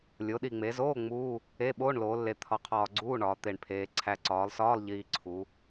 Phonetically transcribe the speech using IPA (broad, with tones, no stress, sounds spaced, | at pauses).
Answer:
lʲ o˩˧ ɗ i˨˩ ŋ͡m e˩˧ z oː˧˥˧ ŋ͡m uː˧˥˧ | e˧˥˧ ɓ oː˧˥˧ ɳ l oː˩˧ lː e˨˩ t̪ʰ ɒ˨˩ qʰ ɒː˨˩ ɡ͡ǀ uː˧˥˧ ɳ ɒː˩˧ t̪ e˨˩ ɳ pʰ eː˩˧ ǀʰ æ˨˩ ǀ ɒː˩˧ lˠ s ɒː˧˥˧ lˠ ʎ iː˨˩ ǀʰ u˩˧